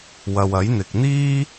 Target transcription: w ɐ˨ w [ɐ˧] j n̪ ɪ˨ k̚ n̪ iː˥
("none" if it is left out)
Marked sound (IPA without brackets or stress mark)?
ɐ˨˥